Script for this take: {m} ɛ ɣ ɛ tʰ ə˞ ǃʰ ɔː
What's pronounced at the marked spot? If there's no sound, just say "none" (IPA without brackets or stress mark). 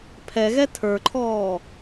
pʰ